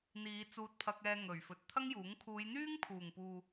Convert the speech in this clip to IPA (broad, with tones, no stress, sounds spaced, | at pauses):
n̪ iː˨˧ t͡s uː˧ t̚ pʰ ɐ˧ k̚ ɛː˧ ŋ ɵ˨˩ ɥ f ɵ˨ t̚ t̪ʰ ɐ˥ ŋ j uː˨˥ ŋ kʰ uː˨˧ j n̪ yː˥ ŋ pʰ uː˨˩ ŋ p uː˨